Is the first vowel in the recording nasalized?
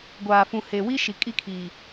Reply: no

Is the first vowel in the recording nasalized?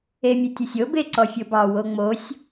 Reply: no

